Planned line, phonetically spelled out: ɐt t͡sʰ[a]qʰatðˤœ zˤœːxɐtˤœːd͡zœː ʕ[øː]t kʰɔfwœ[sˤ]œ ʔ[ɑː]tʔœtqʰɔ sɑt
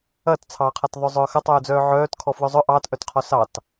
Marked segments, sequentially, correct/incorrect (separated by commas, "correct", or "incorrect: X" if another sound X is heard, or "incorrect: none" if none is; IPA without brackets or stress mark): incorrect: ɑ, incorrect: œː, incorrect: zˤ, correct